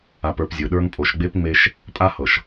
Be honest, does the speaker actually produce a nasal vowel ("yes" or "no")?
no